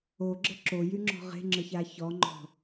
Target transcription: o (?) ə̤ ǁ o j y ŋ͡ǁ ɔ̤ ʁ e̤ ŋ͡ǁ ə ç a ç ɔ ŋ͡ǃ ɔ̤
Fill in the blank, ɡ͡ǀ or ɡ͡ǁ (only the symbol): ɡ͡ǁ